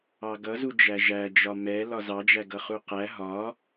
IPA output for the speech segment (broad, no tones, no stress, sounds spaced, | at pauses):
ɑ ɡ ʌ z u d͡ʒ æ ʒ æ d͡ʒ ɒ m ɛ l ɒ z ɑ d͡ʒ æ ɡ ʌ χ u q æ ɦ ɒ